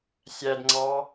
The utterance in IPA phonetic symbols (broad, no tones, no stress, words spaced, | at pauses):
sʲædŋ͡ǀɑ